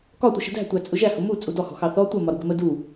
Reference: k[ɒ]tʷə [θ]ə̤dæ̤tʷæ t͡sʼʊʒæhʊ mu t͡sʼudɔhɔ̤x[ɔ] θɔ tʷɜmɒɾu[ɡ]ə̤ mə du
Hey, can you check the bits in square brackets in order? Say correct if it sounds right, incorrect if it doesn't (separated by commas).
correct, incorrect, incorrect, correct